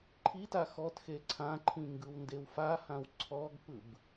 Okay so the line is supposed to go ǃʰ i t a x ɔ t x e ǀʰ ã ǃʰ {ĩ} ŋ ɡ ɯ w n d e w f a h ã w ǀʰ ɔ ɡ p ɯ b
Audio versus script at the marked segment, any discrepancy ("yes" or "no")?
no